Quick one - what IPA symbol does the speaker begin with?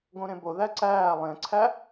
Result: ɡ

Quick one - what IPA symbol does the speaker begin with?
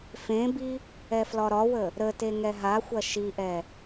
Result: f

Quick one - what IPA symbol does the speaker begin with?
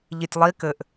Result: ʎ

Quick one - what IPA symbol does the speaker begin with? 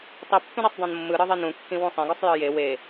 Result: tˤ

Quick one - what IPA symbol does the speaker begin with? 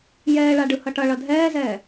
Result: j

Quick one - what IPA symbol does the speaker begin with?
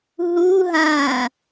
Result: ɦ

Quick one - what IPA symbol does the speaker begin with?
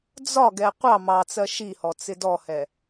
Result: d͡z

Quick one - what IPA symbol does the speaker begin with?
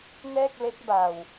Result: n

